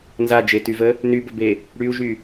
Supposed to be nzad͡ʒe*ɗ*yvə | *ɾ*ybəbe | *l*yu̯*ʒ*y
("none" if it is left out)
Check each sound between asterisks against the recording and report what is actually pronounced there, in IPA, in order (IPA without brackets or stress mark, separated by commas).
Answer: t, n, ɽ, ʒ